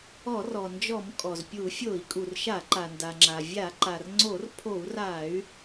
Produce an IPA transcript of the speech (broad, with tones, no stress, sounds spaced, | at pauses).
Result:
ɔ˧˩˧ r ɔ˩ n d͡ʒ ɔ˧˩˧ m kʼ ɔ˩ z pʲ u˧˩˧ fʲ o˧˩˧ i̯ kʼ u˩ r ʃ a˧˩˧ ǃ a˩ n d a˩ ŋ͡ǁ a˩ vʲ a˧˩˧ ǃ a˩ r ŋ͡ǀ o˧˩˧ r pʰ o˧˩˧ u̯ r a˧˩˧ y̯